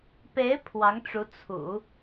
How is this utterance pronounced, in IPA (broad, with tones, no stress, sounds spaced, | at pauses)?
p e˧˥ ɪ̯ pʰ w ɑ˧˥ ŋ ʈ͡ʂ u˧˥ t͡sʰ ṵ˨˩˦